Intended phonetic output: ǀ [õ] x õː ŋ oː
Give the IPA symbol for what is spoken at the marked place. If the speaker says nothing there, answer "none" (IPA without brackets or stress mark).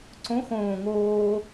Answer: õ